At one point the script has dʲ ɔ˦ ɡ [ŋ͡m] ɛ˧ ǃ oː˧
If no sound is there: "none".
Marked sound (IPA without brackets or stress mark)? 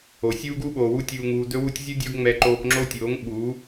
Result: ŋ͡m